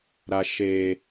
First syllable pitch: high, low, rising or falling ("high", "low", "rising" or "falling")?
low